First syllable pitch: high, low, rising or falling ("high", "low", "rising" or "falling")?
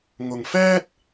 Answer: low